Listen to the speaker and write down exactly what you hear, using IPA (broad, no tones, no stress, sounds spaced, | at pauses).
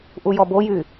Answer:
ʔ u j ɔ b o j y